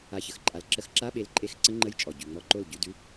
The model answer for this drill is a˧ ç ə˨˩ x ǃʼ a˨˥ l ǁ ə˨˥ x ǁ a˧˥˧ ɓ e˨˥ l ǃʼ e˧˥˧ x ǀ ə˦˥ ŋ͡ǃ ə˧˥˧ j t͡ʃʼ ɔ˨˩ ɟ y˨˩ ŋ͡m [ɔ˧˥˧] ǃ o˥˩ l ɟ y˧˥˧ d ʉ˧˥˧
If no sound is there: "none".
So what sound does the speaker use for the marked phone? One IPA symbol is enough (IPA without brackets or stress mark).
ɔ˧˥˧